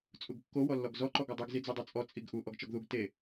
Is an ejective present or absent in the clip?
present